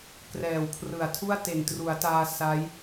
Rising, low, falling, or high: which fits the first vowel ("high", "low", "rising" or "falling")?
low